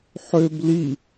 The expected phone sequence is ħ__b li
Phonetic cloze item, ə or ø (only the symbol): ø